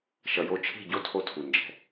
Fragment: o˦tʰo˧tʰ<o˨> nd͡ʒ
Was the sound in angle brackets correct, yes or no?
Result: no